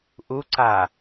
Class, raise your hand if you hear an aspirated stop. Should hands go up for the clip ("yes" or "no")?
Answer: no